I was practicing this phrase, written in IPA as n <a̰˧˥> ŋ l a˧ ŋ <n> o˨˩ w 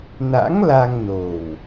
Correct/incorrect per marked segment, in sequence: correct, correct

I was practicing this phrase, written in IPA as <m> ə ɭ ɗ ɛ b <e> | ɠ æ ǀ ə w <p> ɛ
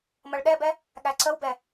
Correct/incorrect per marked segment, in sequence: correct, incorrect, incorrect

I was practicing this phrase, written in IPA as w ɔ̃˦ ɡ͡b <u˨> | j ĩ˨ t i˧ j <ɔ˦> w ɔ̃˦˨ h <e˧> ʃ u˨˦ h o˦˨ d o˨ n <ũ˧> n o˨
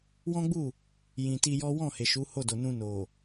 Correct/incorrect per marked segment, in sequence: incorrect, correct, incorrect, correct

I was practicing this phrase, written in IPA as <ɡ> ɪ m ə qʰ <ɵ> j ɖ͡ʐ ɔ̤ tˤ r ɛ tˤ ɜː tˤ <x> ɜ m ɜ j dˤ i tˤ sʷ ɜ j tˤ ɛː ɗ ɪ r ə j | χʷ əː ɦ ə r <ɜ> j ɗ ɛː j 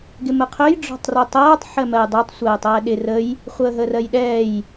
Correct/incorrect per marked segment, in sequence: correct, correct, incorrect, correct

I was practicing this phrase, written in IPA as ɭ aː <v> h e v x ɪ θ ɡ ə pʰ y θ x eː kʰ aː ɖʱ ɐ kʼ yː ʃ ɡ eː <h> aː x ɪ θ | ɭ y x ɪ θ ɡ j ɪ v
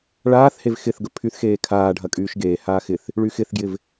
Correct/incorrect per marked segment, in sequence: incorrect, correct

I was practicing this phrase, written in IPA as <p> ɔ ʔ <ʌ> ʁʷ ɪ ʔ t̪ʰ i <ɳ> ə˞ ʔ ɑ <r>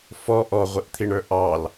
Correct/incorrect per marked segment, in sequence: incorrect, incorrect, correct, incorrect

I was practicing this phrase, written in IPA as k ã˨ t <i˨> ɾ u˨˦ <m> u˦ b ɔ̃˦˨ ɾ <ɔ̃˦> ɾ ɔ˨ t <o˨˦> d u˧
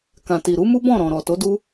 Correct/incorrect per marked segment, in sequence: correct, correct, incorrect, correct

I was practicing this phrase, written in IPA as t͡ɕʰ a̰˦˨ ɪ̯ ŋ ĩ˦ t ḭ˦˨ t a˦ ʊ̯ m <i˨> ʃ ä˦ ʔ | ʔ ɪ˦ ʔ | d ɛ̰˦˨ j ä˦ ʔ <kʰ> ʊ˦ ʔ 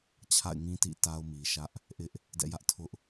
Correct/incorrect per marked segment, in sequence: correct, incorrect

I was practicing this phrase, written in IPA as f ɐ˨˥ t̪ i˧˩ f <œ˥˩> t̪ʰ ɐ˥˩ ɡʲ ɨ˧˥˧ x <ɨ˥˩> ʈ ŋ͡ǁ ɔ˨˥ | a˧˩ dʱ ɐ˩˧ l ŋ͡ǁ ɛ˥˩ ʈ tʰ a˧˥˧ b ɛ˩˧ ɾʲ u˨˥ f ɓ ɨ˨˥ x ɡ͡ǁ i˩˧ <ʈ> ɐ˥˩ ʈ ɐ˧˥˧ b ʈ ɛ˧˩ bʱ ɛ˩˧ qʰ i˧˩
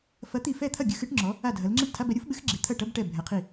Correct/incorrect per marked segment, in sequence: incorrect, incorrect, incorrect

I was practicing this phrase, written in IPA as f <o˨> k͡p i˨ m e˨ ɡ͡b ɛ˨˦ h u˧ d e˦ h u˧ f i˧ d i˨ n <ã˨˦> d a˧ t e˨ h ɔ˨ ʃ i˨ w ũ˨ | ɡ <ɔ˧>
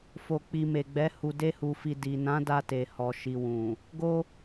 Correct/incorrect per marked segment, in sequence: correct, correct, incorrect

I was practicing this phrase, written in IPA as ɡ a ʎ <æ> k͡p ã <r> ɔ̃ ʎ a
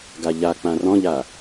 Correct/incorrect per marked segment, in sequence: incorrect, correct

